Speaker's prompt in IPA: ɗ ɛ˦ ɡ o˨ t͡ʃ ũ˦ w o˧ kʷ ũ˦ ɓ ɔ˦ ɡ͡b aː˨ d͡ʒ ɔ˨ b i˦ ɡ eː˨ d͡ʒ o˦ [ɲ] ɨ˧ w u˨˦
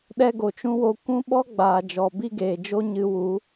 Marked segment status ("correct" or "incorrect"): correct